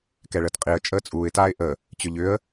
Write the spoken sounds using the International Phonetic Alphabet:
k ɛ ɭ əː t qʼ i ə̯ t͡ʃʼ əː t͡sʼ uː ɪ̯ t aː ɪ̯ ʔ ə | t͡ɕ ʏ ʎ ʏ ə̯

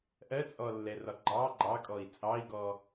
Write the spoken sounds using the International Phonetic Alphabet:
ʔ ɜ t͡sʼ ɔ lː ɛ r ɒ ɡ͡ǃ ɑ ɡ͡ǃ ɑ kʼ ɔ i̯ t͡sʼ ɑ i̯ ɡ ɔ

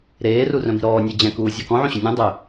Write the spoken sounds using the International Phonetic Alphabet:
ɾ eː r u r œ̃ m i̤ ɾ ɔː nʲ e d͡ʑ ɛ̃ k uː zʲ ɤ k ɔ̃ ʕ ũ ɕ ʏ nʲ ũ dˤ ʏ

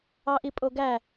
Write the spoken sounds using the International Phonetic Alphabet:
ɑ ʔ i pʼ o ɡ æ

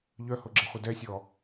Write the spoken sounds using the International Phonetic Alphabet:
ʎ œ h o ɡ͡ǁ e χʷ œ d ɛ sʲ ɔ

